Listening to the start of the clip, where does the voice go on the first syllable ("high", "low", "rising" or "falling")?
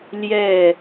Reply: falling